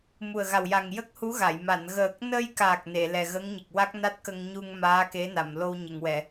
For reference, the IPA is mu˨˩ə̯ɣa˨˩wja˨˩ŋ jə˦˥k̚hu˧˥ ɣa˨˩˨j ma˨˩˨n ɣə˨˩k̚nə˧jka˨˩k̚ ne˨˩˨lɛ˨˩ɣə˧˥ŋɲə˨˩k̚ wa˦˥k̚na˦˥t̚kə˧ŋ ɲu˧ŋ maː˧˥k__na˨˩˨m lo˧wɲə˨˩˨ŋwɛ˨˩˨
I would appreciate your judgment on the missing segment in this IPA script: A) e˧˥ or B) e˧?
A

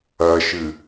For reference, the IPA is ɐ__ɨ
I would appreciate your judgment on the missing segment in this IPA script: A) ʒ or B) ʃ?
B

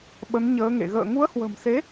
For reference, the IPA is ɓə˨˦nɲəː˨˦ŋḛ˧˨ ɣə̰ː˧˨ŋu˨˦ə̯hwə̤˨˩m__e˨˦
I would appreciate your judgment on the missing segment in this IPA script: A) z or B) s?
B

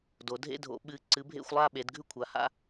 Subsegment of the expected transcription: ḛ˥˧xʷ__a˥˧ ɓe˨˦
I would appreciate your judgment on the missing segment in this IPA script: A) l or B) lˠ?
B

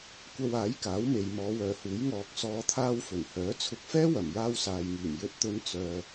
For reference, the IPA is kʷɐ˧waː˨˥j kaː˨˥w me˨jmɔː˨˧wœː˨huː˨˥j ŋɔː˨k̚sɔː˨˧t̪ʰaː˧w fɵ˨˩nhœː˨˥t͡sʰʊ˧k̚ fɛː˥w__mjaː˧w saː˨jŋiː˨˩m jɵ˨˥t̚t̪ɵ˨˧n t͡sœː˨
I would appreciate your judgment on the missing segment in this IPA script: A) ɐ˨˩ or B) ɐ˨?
A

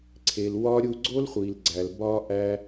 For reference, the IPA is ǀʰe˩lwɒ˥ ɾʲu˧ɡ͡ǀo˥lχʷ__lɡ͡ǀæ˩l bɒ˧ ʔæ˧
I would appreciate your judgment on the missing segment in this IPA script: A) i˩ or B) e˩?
A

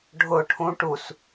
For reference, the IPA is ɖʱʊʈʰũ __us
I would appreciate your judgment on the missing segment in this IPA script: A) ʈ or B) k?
A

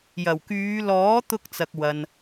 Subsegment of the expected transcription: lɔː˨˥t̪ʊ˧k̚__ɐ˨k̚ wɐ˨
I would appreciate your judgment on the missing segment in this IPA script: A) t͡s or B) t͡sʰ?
A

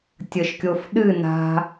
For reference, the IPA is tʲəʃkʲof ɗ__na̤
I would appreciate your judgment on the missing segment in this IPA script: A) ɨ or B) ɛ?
A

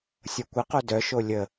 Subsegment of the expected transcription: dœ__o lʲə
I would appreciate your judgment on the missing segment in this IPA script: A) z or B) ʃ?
B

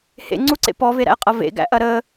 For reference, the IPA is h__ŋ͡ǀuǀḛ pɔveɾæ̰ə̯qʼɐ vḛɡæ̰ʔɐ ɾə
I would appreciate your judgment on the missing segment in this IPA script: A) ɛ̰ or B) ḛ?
B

